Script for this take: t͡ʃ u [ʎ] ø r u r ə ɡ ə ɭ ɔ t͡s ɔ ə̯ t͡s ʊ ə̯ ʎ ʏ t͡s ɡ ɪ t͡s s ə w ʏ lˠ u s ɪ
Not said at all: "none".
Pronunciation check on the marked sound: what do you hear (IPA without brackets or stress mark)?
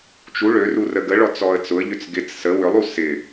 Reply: ɭ